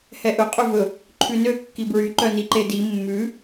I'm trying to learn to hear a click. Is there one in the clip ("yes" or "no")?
yes